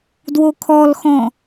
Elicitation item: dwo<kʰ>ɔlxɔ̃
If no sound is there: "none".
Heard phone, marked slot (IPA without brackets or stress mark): kʰ